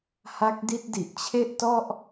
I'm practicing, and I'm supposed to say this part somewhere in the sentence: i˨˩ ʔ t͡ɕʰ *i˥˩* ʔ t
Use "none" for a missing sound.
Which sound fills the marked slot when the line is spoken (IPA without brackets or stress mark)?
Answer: e˥˩